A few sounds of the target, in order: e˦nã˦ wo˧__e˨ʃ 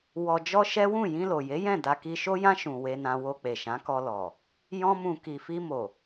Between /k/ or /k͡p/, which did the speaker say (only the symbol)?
k͡p